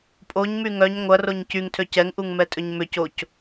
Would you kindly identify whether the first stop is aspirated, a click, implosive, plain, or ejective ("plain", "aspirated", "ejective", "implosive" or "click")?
ejective